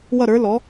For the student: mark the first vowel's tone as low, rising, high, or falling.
falling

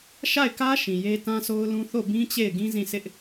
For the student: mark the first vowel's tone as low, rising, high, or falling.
falling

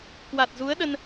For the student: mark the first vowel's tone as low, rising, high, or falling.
low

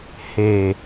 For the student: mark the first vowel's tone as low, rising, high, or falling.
low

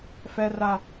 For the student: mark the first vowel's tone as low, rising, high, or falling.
high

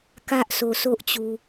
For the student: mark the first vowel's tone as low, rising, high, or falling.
high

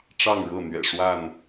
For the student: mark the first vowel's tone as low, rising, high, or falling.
falling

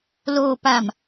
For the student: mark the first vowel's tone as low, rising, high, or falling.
low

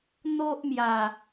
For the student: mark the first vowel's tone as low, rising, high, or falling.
high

